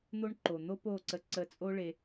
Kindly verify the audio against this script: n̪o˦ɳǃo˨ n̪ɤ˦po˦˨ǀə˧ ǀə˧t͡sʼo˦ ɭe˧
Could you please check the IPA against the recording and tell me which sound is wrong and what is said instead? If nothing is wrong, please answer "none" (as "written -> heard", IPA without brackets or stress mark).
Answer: ɤ˦ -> o˦